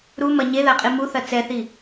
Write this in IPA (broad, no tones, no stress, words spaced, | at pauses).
ɾumɐ ɲeðaqʼi muθɐ t͡sɛθi